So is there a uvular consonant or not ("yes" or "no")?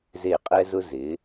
yes